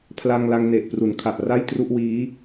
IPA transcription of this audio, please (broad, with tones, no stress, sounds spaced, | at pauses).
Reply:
pʰ l a˧ ŋ l a˧ ŋ n e˨˩ ʔ p r u˩˦ n kʰ a˨˩ ʔ r a˥˩ j t r u˥˩ ʔ w iː˦˥